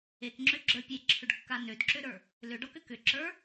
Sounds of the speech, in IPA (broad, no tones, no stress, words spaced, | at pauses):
ekŋ͡ǁøɡ͡ǁə˞ pʲeǁʰʏɖkːa nødǁøɾə˞ | lʏɖɔkʏ kʏǁə˞